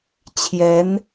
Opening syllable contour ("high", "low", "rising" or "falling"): rising